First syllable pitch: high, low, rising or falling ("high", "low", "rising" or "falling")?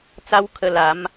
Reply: high